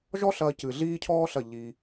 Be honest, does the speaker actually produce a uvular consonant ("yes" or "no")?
no